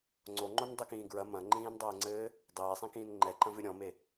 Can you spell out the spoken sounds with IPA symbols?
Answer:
ŋ͡ǀ o ŋ͡ǃ o n dˤ i k ĩː ɡ ɹ ɐ m ɐ̃ ŋ͡ǃ ĩː n dˤ ɘː ŋ͡ǀ ɘː | dˤ eː sˤ ĩ k ĩː n ŋ͡ǃ ɛ ǃ ɐ̃ v ɨ ɾʲ ɔ̃ m e

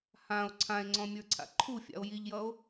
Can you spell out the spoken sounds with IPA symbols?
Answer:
h ã o̯ ǀʰ ã e̯ ŋ͡ǀ ɔ̃ mʲ ə˞ ǀʰ a̰ ǃʰ u fʲ a̰ o̯ j i ʎ j ʌ o̯

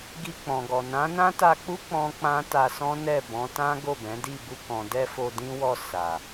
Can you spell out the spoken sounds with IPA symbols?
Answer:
ɡ i˧ k͡p ɔ̃˨ ɡ ɔ˨ n ã˨˦ n ã˦ t a˧ k͡p u˦ k͡p ɔ̃˦ k͡p ã˦ t a˧ s ɔ̃˦ n ɛ˦˨ b ɔ̃˨˦ t ã˦ ɡ o˦˨ b ɛ̃˨˦ d i˦˨ b u˧ k ɔ̃˨ d ɛ˧ f o˧ d ĩ˦ w ɔ˦˨ s a˨

